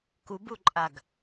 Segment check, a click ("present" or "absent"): present